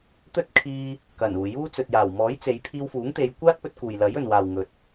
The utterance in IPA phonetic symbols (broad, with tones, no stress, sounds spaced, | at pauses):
t̪ ɵ˥ t̚ kʰ iː˧ | k ɐ˨˩ n uː˨˩ j uː˥ t͡s ɵ˨ t̚ j aː˨˩ w m ɔː˨˥ j t͡s e˨˧ j pʰ iː˧ w f uː˨˥ ŋ t̪ e˨˧ j kʷ aː˥ t̚ p ɵ˧ t̚ k uː˨ j l ɐ˨˥ j ɵ˨ n w aː˨ w ŋ ɵ˨ t̚